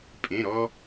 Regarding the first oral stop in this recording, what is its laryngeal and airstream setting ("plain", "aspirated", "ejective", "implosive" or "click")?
ejective